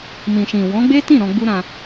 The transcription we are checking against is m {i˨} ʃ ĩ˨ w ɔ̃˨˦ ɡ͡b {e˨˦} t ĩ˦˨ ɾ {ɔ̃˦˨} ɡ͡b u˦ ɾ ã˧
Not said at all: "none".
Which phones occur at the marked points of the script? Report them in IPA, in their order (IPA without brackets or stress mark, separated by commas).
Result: ĩ˨, e˦, ɔ̃˧